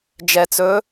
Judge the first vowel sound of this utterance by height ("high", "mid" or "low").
mid